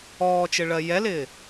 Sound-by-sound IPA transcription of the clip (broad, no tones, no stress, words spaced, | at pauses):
ɔːt͡ʃɪ ɭɜjɛlɪː